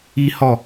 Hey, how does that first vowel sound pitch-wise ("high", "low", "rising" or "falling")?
high